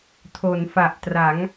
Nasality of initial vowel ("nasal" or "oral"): oral